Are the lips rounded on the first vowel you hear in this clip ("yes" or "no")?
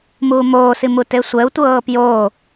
yes